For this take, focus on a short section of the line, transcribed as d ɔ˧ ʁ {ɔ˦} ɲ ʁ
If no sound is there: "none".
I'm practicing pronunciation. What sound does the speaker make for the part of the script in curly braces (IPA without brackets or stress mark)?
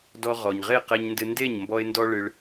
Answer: ɔ˨